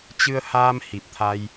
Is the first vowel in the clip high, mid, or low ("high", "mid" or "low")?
high